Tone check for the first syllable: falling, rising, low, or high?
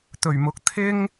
low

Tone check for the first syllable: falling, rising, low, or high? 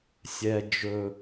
high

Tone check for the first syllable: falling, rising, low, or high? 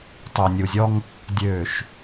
low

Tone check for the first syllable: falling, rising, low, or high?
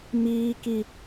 high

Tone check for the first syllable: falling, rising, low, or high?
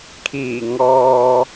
low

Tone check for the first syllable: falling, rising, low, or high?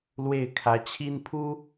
falling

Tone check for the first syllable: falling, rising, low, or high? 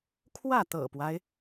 falling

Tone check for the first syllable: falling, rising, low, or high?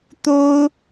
high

